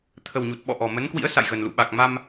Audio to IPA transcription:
t̪ʰə˨˩wɲu˨˩t̚ɓɔ̰˧˨ ʔɔ˨˩mə˨˦n kwḭ˧˥ə̯sa̰˧˨jɣə˨˩nlṵ˧˨ ɓa˨˩k̚ma˧m

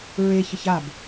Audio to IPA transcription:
ɹeç əçab

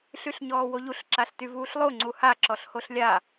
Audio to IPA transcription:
ɬyɬɲɔːwoʎuɬ ǁaɬtyvuːɬlˠo ŋ͡ǀuha ǁɔɬhoɬlʲa

